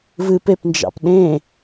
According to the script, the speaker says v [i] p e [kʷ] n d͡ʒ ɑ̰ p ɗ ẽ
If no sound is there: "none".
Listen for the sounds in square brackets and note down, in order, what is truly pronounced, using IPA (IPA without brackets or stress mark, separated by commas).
ɨ, p